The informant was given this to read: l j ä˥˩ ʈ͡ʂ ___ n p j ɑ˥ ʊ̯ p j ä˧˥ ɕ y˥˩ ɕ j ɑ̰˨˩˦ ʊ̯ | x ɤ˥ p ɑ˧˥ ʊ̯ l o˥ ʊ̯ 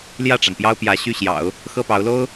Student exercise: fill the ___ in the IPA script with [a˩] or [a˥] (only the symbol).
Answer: a˩